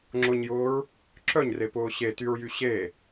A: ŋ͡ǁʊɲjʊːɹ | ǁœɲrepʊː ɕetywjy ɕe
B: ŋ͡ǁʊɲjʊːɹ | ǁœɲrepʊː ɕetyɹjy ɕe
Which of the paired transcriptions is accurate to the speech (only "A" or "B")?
B